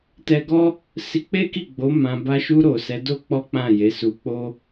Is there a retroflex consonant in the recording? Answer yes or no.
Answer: no